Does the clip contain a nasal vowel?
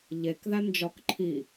no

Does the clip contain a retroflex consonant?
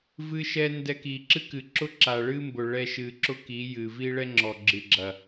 yes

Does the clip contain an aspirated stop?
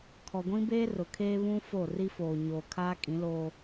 yes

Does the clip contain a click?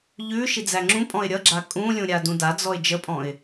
yes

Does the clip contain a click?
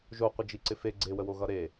yes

